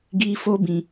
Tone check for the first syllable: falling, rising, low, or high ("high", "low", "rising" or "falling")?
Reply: high